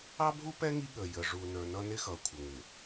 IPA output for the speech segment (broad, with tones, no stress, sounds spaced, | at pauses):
ɑ˦ bʱ u˦ p ɛ˦ ŋ i˦ ɠ ə˨ j ə˨ ʐ u˨ n ə˞˨ n ʌ˦ n ɪ˦ x ʌ˨ kʷʰ ə˨ ŋ ɪ˨